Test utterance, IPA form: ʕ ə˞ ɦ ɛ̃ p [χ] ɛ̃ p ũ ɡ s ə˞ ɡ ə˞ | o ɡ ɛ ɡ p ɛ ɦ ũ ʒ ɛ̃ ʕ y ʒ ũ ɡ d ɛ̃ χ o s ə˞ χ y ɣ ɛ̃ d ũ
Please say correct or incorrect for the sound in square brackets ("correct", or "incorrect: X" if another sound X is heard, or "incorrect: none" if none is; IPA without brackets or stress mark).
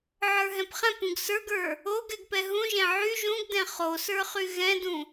correct